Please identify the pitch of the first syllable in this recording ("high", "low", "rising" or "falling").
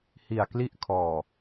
low